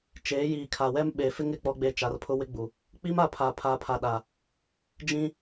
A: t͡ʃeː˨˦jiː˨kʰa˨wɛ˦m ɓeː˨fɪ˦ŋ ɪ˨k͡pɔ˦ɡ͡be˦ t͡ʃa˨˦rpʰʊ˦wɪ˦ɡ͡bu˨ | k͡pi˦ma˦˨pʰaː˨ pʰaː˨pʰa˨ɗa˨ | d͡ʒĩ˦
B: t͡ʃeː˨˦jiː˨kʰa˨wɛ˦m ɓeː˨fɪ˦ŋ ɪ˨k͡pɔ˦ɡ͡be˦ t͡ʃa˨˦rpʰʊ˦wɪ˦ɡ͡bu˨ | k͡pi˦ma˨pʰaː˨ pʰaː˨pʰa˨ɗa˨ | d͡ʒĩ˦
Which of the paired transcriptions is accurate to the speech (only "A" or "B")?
A